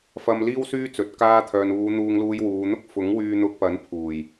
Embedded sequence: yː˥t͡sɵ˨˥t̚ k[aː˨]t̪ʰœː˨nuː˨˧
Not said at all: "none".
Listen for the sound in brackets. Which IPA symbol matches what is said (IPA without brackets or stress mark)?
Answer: aː˧